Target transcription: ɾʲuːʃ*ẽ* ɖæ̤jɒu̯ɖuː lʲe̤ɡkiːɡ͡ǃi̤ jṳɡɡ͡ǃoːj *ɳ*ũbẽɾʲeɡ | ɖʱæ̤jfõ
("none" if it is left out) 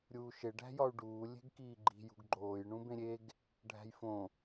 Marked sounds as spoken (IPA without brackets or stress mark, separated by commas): e, ɳ